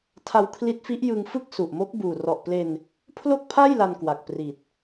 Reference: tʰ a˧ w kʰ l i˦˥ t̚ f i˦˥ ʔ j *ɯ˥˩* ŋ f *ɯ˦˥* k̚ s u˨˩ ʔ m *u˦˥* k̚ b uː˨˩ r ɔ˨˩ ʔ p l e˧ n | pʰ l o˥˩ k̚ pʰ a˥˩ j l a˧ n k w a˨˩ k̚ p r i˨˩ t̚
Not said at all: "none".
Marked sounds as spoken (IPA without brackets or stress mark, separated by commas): ɯ˧, ɯ˥˩, o˦˥